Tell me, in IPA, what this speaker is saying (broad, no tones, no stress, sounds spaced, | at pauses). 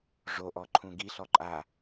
ʐ o ʔ ɔ ǃʰ ũ ɡ i ɬ ɔ ǃʼ a